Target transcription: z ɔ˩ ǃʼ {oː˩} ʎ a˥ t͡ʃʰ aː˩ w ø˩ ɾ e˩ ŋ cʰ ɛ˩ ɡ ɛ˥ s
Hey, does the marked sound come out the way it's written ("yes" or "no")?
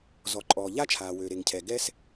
no